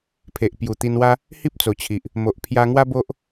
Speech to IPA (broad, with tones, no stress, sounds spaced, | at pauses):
pʰ e˨ ʔ p j u˨˩ t̪ i˧ n w a˦ | h i˦ p̚ t͡s o˨˩ t͡ɕʰ i˨ ʔ | m o˨ ʔ pʰ j a˧ ŋ w a˦ b o˦ ʔ